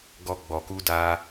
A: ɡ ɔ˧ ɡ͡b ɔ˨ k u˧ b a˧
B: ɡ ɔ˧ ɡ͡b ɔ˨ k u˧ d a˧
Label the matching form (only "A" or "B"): B